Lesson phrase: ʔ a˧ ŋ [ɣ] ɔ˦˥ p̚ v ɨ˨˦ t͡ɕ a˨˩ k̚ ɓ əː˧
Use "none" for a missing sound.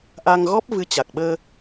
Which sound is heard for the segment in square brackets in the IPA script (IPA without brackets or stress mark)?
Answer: ɣ